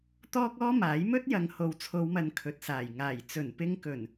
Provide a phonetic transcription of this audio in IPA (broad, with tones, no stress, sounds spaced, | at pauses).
t̪ ɔː˥ k̚ ɔː˥ m aː˨˥ j m ɵ˥ t̚ j ɐ˨ ŋ h o˨ w t͡sʰ o˨˧ w m ɐ˨ n kʰ ɵ˨ t̚ s aː˨˩ j ŋ aː˨˩ j t͡s ɵ˨˩ n p ɪ˧ ŋ k ɵ˨˩ n